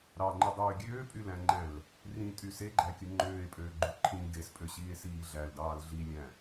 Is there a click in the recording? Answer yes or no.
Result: yes